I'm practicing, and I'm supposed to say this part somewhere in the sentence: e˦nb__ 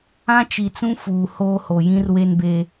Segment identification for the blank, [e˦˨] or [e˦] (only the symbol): e˦